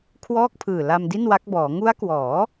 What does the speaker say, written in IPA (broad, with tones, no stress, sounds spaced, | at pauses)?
kʰ w ɔː˥˩ k̚ pʰ ɯː˨˩ l a˧ m d i˥˩ n w a˦˥ k̚ b ɔː˩˦ ŋ u˦˥ a̯ k w ɔː˩˦